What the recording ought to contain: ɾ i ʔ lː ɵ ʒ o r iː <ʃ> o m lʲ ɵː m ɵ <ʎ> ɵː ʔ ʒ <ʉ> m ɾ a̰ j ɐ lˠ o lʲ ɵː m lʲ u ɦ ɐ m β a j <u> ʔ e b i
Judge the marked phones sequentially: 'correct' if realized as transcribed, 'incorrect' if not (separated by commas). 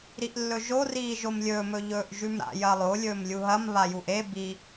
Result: incorrect, correct, correct, correct